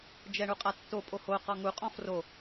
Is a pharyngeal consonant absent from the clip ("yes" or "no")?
yes